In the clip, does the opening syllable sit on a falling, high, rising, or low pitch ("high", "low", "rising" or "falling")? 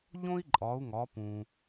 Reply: high